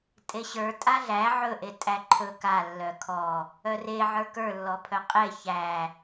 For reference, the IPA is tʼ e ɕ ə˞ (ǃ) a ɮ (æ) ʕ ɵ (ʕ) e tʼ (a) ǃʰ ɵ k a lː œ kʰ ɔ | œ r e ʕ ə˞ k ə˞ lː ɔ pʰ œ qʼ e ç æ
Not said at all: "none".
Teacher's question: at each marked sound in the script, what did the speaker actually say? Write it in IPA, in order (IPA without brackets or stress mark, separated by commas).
tʼ, æ, ʔ, æ